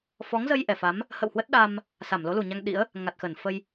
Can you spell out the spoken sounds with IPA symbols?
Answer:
f ɔ˨˦ ŋ z ə˧ j ʔ ɛ˧˩ f a˨˦ m | h ə̰˧˨ w h w ə˦˥ t̚ ɗ a˧ m | s a˧˩ m l o˨˦ l u˨˩ ɲ a˧ ŋ ɗ ḭ˧˥ ə̯ | ŋ a˨˩ t̚ x ə˧˩ n f ə˧ j

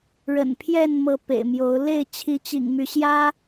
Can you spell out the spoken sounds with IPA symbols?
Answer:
ɻ ə̰˨˩ n pʰ j ɛ˥˨ n m ɤ˨˦ p ḛ˨˩ ɪ̯ m j o˨˦ ʊ̯ l e˥˨ ɪ̯ t͡ɕʰ i˨˦ t͡ɕ ḭ˨˩ ŋ m y˨˦ ɕ j ä˦

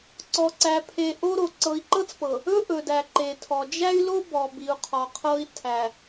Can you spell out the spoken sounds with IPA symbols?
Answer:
ǀ ɔ˨ ǀ æ˨ pʰ e˨ ʔ o˦ ɾ o˨ ǀ ɤ˨ i̯ ǃ ɤ˦ t͡s p ɤ˨ | ɵ˦ ʔ ɵ˨ d æ˨ ǃ e˨ tʰ ɔ˨ d͡ʒ æ˦ y̯ l o˦ b ɔ˨ b i˨ u̯ qʰ ɔ˨ qʰ ɤ˦ i̯ tʰ æ˨

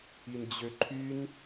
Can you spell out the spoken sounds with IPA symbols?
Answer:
i n d͡ʑ ø ǃʰ y n

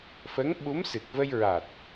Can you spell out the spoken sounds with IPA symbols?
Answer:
f ə˧˥ ŋ ɓ u˧˥ m s ɨ˨˩ k̚ v ə˧ j ɹ a˨˩ t̚

